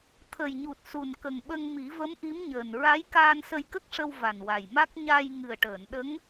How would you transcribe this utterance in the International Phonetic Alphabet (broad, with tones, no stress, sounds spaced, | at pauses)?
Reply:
t̪ʰ ə˨˩ j ɲ u˨˩ t̚ s u˨˩ n k ə˨˩ ŋ ɓ ə˧ ŋ m i˨˩˦ v ə˧˥ m ʔ i˧˥ m ɲ əː˨˩ n ɹ a˧˥ j k aː˧ n s ə˧ j k ə˦˥ k̚ ʂ ə˧ w v a˨˩ n w a˨˩ j m a˦˥ k̚ ɲ a˧ j ŋ ɨ˨˩ ə̯ ʈ əː˨˩˨ n ɗ ə˧˥ ŋ